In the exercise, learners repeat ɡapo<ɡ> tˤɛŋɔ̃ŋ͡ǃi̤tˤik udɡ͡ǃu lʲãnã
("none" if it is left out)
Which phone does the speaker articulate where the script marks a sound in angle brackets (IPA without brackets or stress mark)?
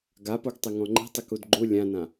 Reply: ɡ